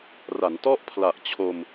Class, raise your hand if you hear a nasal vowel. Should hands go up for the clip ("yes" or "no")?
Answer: no